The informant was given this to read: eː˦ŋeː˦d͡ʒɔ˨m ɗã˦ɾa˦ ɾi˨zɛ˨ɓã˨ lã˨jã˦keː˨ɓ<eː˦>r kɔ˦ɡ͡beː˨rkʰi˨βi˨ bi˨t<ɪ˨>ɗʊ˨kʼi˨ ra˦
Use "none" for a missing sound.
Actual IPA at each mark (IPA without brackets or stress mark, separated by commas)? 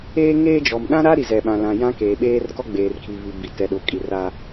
eː˦, ɛ˨